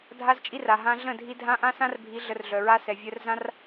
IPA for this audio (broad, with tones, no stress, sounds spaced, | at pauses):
dʱ a˦ z t͡ʃʼ i˦ r a˨ ɦ ã˧ ɮ ə̃˦˨ dʱ i˧ dʱ ã˦ ʔ ã˦ s ã˦ r bʱ i˨˦ ɮ ə˧ r ɮ œ˨ ɹ a˦ s ɛ˨ vʲ œ˧ r z ã˦ r